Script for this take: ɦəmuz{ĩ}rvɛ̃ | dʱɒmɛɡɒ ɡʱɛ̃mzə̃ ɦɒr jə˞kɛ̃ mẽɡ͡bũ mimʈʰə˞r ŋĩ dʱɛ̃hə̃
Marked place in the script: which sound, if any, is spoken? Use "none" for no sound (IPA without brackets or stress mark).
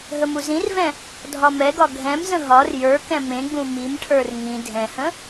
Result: ĩ